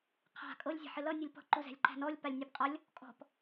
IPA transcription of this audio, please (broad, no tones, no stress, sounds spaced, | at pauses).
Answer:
qʰ a̤ kʼ ɤ lʲ zʲ a̤ ħ ɪ l ʌ nʲ ʌ lʲ p ɔ̤ ǃ u z æ̤ lʲ ǃ æ̤ n ɔ lʲ p a lʲ nʲ ɤ p qʼ ʌ lʲ | kʼ ɔ̤ p